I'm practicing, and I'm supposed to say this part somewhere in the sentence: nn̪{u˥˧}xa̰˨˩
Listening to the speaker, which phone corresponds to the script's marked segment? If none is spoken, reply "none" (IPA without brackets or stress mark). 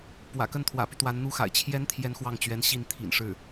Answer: u˥